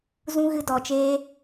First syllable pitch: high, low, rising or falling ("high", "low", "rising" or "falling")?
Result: high